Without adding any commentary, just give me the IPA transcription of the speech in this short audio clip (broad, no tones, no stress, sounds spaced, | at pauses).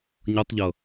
ɲ ʌ tˤ ʎ ʌ